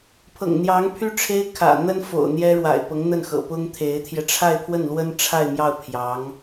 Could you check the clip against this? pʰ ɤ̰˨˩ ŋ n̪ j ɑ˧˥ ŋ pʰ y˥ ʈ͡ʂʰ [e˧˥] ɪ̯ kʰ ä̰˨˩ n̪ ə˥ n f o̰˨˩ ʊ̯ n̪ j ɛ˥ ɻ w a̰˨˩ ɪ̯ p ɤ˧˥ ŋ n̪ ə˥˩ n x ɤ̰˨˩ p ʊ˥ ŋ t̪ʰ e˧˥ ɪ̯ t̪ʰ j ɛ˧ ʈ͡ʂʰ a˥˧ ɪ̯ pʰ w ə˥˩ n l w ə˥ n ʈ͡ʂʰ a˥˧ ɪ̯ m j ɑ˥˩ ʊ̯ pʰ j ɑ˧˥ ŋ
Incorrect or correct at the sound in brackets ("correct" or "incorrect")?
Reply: incorrect